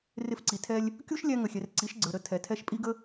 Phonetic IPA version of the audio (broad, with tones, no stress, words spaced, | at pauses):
rɪ˧fǀi˨tʰɛ˧lʲ | kʲu˦ʃ lʲæ˦ ŋə˨xʲɛ˨r ǀi˨˦ʃɡ͡ǀə˞˨ ɾə˧ tʰɛ˨ tʰɛ˦˨ʃpʼi˦ɡə˦